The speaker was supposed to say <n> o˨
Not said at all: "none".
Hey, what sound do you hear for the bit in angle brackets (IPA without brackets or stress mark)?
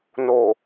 n